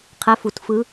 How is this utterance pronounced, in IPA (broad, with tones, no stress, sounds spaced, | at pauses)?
qʰ ɛ˧˥ f u˨˩˦ t f ɯ˧˥